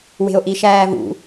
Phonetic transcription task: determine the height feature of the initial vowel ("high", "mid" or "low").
mid